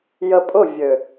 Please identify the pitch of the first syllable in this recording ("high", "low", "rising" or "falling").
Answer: low